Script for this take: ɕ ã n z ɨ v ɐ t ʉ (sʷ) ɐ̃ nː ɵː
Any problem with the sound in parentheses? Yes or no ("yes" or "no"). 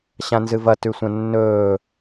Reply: no